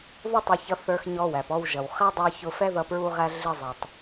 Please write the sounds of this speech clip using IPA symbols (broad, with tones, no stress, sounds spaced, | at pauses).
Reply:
ð ʊ˥ tˤ æ˧ ç ʌ˧ θ ə˞˧ x ɲ ɔ˧ w æ˩ p ɔ˧ w ʒ ʌ˩ w χ æ˥ dˤ ə˞˧ ç ʊ˧ f ɛ˥ ð ʌ˧ p ɹ u˧ ʁ æ˧ ɮ ɪ˧ zˤ æ˩ tˤ